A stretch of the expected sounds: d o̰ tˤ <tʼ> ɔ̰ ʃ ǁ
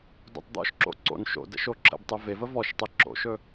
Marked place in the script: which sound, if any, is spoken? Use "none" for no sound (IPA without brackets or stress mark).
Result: d̪